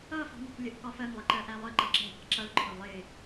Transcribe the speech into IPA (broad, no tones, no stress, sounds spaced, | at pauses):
ʌ f ɑ̤ n ɛ̤ k lʲ ə ʔ k ɒ f ɜ ŋ lˠ ɪ ǃ ɜ ʔ æ lˠ ə ǃ ʌ ǁ ɛ̤ ʔ ɑ̤ ǁ ʌ ɭ ǃʰ ʊ lˠ ɪ